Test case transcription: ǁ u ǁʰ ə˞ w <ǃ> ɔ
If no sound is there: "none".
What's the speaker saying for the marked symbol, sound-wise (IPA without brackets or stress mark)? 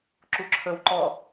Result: ǃ